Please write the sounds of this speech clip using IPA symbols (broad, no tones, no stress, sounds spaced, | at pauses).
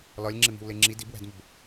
l ɒ lʲ ŋ͡ǁ e m i̤ w l e ŋ͡ǁ i d i b w æ̤ d m o b